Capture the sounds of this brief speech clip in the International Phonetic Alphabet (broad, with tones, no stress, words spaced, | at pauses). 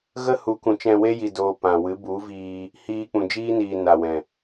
ɣə˦hu˨˦ kũ˨t͡ʃɛ̃˧we˦ ji˧doː˧ pã˨ wɨ˨˦ bu˨˦viː˧ | hiː˧k͡pũ˨ d͡ʒiː˦niː˨ na˨wɛ̃˨